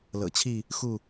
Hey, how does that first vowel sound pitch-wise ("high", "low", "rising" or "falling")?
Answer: low